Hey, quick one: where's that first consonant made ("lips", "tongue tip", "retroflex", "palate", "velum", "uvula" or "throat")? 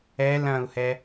tongue tip